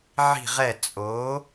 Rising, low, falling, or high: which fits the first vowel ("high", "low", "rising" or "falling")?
falling